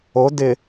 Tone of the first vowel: rising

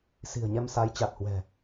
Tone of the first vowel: low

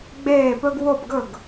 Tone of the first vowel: falling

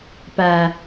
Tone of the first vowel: low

